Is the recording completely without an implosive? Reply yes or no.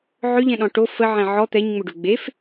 no